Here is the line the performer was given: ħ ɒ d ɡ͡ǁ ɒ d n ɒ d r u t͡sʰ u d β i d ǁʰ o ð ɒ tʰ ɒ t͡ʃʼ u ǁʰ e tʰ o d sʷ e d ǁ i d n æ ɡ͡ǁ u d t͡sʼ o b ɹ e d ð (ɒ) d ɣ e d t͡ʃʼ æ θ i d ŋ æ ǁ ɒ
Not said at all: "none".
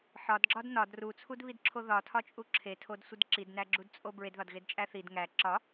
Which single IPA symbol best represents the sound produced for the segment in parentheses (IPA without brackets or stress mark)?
ɒ